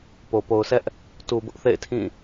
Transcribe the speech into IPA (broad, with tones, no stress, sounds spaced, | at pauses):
p o˨ p o˨ ʊ̯ s ɛ˦ ʔ | t u˨ b ʊ˦ ʔ θ ḛ˦˨ ɪ̯ tʰ ĩ˦˨